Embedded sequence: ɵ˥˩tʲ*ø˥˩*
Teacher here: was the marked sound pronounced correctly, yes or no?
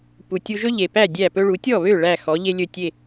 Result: no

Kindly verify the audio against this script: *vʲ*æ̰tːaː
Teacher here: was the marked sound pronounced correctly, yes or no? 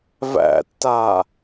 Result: no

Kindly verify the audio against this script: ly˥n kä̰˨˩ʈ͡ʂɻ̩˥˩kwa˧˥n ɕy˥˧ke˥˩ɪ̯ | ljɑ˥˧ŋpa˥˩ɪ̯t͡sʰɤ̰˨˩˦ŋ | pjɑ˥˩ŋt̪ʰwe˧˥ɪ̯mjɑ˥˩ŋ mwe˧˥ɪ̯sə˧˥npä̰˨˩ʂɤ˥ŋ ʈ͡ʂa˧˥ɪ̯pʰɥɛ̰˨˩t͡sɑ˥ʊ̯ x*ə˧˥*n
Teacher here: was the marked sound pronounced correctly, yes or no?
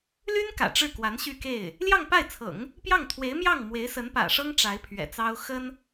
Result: no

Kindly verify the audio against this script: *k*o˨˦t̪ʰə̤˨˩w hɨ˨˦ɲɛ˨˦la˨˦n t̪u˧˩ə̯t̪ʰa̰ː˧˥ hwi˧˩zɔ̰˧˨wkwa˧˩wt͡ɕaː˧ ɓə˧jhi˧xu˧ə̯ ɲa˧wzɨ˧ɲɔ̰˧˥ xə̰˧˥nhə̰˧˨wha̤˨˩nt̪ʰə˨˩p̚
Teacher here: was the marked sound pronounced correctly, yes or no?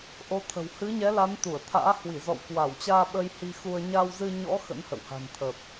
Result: no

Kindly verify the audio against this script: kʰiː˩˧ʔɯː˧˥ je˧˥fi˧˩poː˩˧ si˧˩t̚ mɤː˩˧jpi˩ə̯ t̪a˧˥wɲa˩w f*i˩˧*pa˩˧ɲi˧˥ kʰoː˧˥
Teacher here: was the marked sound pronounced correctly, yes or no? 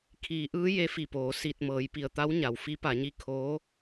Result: no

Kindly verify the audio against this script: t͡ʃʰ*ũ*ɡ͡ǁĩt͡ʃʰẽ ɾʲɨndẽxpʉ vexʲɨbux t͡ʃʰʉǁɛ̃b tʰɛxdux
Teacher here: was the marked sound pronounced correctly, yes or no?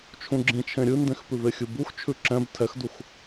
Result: yes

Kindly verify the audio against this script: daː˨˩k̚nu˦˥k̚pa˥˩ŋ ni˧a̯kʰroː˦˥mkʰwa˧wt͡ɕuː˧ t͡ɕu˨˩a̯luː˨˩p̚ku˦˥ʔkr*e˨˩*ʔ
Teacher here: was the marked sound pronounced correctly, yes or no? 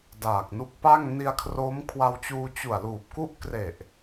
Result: yes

